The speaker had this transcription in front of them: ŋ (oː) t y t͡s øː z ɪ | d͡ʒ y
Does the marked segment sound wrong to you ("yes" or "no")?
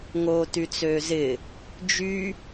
no